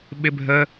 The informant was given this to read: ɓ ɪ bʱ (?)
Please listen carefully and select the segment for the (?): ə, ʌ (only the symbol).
ə